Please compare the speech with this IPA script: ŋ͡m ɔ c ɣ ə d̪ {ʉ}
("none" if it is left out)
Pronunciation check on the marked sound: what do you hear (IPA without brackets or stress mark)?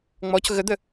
ə